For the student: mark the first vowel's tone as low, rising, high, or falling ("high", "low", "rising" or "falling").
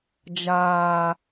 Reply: high